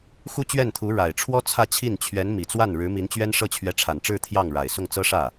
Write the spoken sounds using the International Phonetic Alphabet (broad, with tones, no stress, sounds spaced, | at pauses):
x u˥ t͡ɕ ɥ ɛ˥˩ n t̪ʰ u˧˥ ɻ a˨˩ ɪ̯ ʈ͡ʂʰ w ɔ˥ t͡sʰ ä˥˧ t͡ɕʰ i˥˩ n t͡ɕʰ ɥ ɛ˧˥ n m i˨˩ t͡s w a˥˩ n ɻ ɻ̩˧˥ m i˧˥ n t͡ɕ ɥ ɛ˥ n ʂ ɤ˥˩ t͡ɕʰ ɥ ɛ˧˥ ʈ͡ʂʰ a˨˩ n ʈ͡ʂ ɻ̩˥˧ t̪ʰ j ɑ˥˩ ŋ ɻ a˨˩ ɪ̯ s ʊ˥˩ ŋ t͡s ɤ˥ ʂ ä˥˩